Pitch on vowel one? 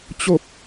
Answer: falling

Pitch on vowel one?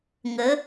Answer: rising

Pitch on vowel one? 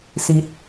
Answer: low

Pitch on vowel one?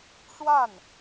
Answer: falling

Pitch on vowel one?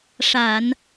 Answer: low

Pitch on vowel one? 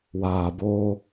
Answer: low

